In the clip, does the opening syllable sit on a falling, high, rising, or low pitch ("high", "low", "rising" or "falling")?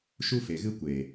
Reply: high